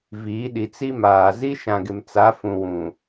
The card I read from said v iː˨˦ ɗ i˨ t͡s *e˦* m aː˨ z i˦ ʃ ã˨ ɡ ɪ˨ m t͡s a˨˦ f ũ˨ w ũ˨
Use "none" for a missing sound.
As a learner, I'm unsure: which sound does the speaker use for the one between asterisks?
i˦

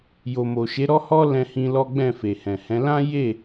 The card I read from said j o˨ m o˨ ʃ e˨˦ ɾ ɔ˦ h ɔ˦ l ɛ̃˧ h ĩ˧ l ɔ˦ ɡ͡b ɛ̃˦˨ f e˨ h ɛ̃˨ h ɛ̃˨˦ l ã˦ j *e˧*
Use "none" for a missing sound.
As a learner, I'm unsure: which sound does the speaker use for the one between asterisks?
e˦˨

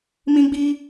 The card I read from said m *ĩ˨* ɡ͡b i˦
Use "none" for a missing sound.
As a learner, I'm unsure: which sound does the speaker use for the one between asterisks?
ĩ˦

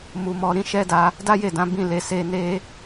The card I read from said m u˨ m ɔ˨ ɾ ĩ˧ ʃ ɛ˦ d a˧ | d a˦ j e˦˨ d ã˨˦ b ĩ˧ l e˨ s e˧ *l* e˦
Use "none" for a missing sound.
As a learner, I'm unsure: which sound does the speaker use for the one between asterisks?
n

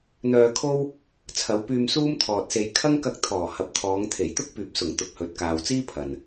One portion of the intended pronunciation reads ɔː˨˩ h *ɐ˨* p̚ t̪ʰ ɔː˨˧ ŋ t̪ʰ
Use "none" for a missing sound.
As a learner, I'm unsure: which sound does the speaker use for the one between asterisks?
ɐ˨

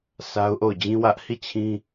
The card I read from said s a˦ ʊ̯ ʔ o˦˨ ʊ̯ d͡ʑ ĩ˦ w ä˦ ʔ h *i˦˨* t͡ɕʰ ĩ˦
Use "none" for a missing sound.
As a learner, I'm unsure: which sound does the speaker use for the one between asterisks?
i˦˨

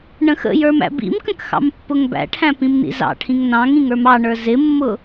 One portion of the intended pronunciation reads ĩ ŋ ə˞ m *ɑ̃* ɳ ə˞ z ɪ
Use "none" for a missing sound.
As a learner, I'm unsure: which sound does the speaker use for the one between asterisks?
ɑ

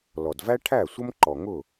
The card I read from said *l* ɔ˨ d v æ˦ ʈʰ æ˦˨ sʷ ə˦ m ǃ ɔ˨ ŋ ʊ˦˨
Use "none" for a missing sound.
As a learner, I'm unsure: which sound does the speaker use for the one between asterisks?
l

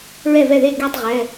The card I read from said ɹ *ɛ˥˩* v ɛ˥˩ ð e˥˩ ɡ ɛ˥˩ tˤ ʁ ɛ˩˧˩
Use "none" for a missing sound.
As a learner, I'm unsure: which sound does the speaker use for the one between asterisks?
ɛ˥˩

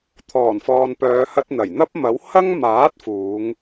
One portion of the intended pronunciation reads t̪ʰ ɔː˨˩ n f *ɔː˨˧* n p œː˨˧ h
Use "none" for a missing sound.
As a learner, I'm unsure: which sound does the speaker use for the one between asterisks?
ɔː˨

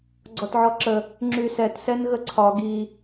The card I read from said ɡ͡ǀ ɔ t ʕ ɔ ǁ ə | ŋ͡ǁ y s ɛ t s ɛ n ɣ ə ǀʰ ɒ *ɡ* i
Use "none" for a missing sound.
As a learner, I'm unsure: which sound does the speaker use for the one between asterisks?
ɡ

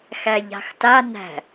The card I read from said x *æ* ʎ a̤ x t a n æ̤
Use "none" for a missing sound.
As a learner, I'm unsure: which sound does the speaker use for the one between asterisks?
æ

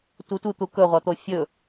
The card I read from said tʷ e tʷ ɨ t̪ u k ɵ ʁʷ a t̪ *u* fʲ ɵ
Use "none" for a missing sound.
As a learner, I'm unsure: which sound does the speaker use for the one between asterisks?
o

